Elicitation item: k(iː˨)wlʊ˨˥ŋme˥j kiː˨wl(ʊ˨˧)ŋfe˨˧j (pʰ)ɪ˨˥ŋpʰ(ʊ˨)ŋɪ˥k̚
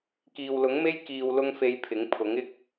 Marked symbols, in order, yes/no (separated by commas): yes, no, yes, no